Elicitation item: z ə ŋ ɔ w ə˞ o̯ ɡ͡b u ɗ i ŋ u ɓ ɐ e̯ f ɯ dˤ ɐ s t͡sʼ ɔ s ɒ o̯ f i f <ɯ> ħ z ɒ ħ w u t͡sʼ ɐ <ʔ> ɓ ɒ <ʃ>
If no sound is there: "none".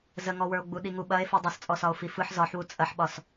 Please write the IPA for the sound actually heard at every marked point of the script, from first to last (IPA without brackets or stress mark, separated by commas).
ɯ, ħ, s